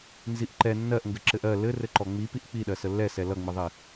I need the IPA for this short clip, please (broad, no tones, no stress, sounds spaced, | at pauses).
n z i ʔ ǃ ɛ nː ɜ ʔ ŋ ɡ ɘ ǁ ɘ ʔ ɜ l ɘ r ɘ ǃ ɔ ŋ͡m i p i ʔ k͡p i ɗ ɜ s ə lː ɛ s ɛ l ʌ ŋ͡m ɯ ðˤ i